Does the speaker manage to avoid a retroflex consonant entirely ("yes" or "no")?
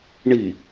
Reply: no